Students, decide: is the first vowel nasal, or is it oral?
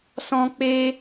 nasal